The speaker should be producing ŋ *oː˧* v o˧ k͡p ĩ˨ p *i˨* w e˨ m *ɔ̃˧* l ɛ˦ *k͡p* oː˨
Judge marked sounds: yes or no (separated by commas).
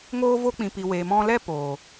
yes, yes, yes, no